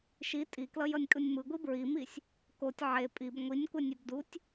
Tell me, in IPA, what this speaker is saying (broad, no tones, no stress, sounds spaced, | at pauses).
ʃ i tʼ i k l ʌ j ʌ nʲ kʼ ɯ nʲ m ɯ ɡʷ i b ɹ i m i sʲ | k o tʲ ʕ e pʼ i b ŋʷ i nʲ kʷ ɛ nʲ a b d u tʲ